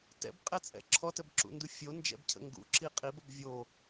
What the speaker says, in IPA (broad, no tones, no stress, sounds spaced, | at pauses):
t ɛ̰ b qʼ ɛ t͡sʼ ɛ̰ ǁʰ ɔ t ə b ǁ ṵ n d u fʲ o n d͡ʒ ɛ̰ b cʰ ə̰ ŋ ɡ ṵ ǁ i qʼ i b ə b vʲ o